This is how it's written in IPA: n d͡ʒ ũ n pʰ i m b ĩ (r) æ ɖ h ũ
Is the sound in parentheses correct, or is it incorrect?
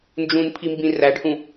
correct